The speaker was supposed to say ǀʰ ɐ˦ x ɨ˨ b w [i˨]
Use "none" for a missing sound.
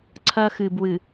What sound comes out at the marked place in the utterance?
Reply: ɨ˨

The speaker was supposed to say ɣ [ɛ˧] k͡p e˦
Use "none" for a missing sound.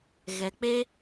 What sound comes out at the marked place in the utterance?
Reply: ɛ˧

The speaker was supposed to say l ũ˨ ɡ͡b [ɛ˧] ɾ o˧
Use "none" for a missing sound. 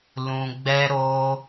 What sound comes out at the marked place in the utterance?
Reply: ɛ˧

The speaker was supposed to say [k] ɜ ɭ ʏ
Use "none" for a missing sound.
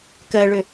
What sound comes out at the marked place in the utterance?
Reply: k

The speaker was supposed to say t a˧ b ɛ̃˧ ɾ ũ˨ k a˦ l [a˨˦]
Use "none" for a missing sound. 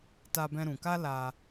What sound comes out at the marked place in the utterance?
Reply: a˧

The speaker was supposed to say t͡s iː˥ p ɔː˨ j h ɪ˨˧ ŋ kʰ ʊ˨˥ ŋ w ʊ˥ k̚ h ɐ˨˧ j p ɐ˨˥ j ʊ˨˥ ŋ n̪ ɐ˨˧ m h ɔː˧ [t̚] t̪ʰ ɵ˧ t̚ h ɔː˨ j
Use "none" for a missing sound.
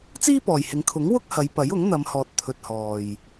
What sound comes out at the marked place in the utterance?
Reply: t̚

